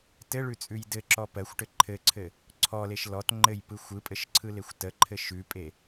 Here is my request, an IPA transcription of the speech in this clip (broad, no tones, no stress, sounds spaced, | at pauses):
t ɘ ɭ ʉ t͡sʼ ʉ j d ɘ ǁ ɔ p ɜ xʷ ʈ ɘ ǃʰ ɘ ǀʰ ɘ | ǀʰ ɔ l e ʃ l ɔ t ŋ͡ǃ ɘ j p ɯ xʷ ɯ pʼ ɘ ʃ ǀʰ ɯ l e xʷ t ə ǃʰ ɘ ʃ ʉ pʼ e